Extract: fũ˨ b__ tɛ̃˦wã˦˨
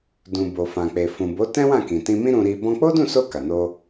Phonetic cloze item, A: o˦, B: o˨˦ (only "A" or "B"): B